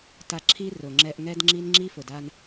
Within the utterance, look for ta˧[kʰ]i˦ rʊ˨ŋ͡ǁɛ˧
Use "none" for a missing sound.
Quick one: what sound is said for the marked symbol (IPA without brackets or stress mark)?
ǁʰ